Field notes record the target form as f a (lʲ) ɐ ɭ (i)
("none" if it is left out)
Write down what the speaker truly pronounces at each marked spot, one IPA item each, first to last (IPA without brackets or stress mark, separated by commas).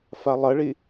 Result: lˠ, i